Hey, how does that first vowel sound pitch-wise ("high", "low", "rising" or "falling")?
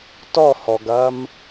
falling